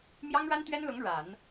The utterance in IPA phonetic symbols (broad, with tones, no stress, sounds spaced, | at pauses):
m j ɑ˥ ŋ ɻ a˥ n t̪ ɥ ɛ˥ n l ʊ˧˥ ŋ ɻ a˨˩˦ n